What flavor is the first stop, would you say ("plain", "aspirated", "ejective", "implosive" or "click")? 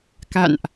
plain